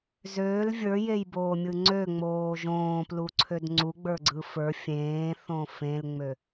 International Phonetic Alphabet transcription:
zøl vʲə˞jejboːmʲɯ ŋ͡ǀøŋ͡moː ʒõːpluǀʰød ŋ͡ǀuɡ͡bə˞ɡ͡ǀɯ fə˞ fʲẽːθõ fẽlŋ͡mø

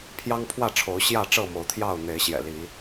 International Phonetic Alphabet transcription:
pʰjɑ˦ŋpʰwä˥˨ ʈ͡ʂʰo˨˦ʊ̯ ɕjä˥˨ʈ͡ʂɤ˥˨mo˨˦ʊ̯t̪ʰjɑ˥˨ʊ̯ n̪e˨˦ɪ̯ɕjɛ̰˨˩ li˨˦

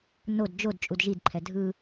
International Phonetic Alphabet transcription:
nod d͡ʒod t͡ʃʼudʒidǃʰɛ dʱɯ

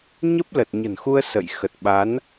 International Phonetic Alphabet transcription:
ɲə˦˥p̚lə˨˩t̚ɲə̤˨˩nxu˧ə̯ sə̰˧˨j xə˨˩t̚ ɓa˨˦n

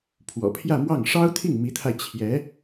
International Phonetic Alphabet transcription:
pʰwɔ̰˨˩pʰjä˥˧mwɑ˥˩ŋ ʂɑ˥ʊ̯ t̪ʰi˥˩ŋmi˧˥t̪ʰa˧ɪ̯ t͡ɕʰjɛ˧˥

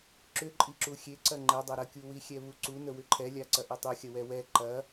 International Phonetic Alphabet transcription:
ǁʏǃʼiǁu xʲe ǀɐŋ͡ǃɛdˤɐ ɾɐkʲuwixʲɛ βuǀu nəwʏǃʰɛlʲa ǀɐʔɛtˤuxʲɐ wɛwɛ ǃɐ

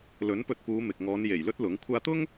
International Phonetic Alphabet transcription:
lɵ˨˥npɵ˧t̚puː˨˧ mɪ˨k̚ ŋɔː˨˧nje˨˩j lɵ˥t̚lʊ˨˥ŋ kʷʰaː˧t̪ʊ˥ŋ

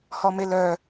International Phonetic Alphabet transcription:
hɔmelœ

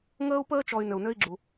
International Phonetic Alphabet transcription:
ŋəː˥u̯pəː˥t͡ʃɔ˨y̯ nø˩u̯nø˦i̯ɡ͡ǁu˩

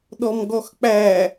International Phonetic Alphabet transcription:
ɗɔmɡɔxk͡pæ

